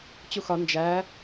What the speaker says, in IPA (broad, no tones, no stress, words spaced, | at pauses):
t͡ɕuxɒ nd͡ʒæ